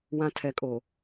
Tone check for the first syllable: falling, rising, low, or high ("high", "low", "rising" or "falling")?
low